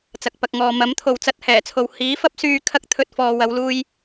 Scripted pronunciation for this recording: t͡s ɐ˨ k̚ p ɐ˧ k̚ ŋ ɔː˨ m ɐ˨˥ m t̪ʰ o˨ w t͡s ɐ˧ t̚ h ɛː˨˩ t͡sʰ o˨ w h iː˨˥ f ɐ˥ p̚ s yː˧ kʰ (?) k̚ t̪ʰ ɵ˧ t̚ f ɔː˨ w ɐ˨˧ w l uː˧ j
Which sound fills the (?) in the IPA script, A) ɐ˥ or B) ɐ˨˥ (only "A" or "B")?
A